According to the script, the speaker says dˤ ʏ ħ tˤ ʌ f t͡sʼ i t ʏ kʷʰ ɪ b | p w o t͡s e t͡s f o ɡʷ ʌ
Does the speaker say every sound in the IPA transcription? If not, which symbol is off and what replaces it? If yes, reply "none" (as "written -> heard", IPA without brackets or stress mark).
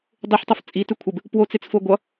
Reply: none